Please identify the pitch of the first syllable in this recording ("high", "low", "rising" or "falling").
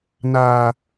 low